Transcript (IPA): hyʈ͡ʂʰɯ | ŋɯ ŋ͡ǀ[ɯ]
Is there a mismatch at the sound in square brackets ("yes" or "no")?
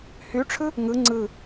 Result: no